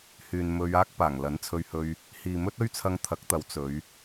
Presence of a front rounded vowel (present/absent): present